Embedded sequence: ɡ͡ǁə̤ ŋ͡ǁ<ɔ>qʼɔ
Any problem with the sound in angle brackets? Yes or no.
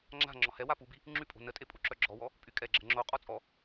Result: yes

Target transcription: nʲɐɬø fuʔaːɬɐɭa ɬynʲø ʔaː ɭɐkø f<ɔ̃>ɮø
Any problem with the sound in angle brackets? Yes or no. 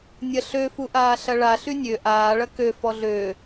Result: yes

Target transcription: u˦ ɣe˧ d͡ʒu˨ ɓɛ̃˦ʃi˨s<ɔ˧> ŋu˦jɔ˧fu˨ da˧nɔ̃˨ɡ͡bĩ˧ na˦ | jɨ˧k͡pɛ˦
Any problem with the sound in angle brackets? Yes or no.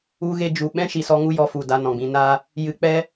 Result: no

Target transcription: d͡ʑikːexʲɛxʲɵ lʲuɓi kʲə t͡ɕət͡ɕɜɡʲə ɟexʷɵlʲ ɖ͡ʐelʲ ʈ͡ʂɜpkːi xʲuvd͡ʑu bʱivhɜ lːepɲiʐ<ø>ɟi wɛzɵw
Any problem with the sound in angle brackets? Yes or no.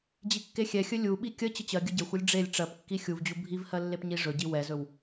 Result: yes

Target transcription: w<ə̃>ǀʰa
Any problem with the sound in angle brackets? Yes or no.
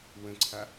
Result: no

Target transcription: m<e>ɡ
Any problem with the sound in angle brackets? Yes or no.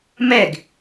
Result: yes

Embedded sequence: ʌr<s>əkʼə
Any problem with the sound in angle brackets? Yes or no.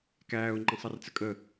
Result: yes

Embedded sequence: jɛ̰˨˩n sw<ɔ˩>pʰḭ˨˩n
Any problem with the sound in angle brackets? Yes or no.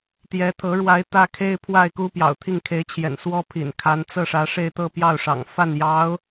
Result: yes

